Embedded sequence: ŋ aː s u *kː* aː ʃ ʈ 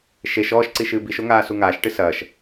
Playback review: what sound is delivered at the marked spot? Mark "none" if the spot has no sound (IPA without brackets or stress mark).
ŋ